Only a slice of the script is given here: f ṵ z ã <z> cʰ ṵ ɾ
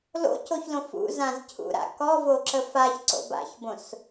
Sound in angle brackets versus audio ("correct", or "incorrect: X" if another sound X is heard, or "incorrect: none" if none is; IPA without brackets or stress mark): correct